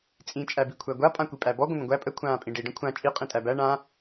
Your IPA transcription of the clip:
t͡sʼ ĩ t͡ʃʼ æ b i kʷʰ æ ɡʷ a pʼ ã kʷ i pʼ æ b ɔ ɡʷ ə̃ n̪ ə̃ ɡʷ æ pʼ ə kʷʰ ãː pʼ ĩ ɖ i ɖ ə̃ kʷʰ ã t͡ʃʼ i qʼ ĩ tʼ æ b æ ɳ ã

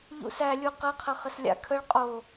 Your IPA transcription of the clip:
ʎ ṵ s æ lʲ u q ɐ qʰ ɐ χ ə s lʲ a̰ kʰ ə ɭ qʼ o

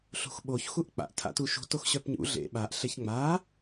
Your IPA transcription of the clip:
ɬ ṳ x ɓ o ç x u ʔ k͡p a̰ ʔ tʰ a̰ t u ʃ ṳ t o x ɕ œ p ɲ ṵ ɮ ḛ ɓ a ʔ ɬ e ç ŋ͡m a

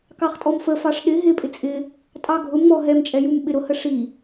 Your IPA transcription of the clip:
k ɑ χ tʼ ɔ m f ə f ɑ ʂ ɗ ɪ ɦ ɪ pʼ ɪ t͡sʼ ɪ | tʼ ɑ ɡʱ ʊ m ŋ͡m ɔ ɦ ɛ m t͡ʃʼ ɛ j u m ɓ ɪ ɾ ʊ h ə ʂ i

